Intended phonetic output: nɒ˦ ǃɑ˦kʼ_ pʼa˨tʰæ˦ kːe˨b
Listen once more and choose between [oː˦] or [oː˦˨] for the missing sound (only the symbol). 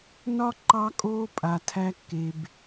oː˦